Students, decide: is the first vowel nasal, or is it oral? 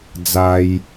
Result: oral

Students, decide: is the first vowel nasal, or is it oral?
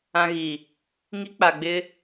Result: nasal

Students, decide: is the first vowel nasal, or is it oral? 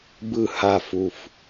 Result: oral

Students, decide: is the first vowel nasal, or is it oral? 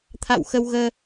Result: oral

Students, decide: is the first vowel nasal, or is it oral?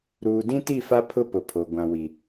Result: oral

